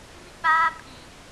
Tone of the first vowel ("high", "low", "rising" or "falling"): high